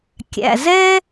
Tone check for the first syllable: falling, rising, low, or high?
low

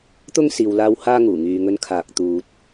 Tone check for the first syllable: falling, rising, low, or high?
high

